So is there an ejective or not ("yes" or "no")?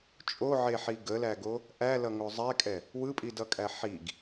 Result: yes